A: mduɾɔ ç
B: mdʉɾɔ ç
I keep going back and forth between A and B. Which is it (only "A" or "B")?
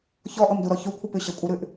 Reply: A